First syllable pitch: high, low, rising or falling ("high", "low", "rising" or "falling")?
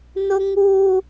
high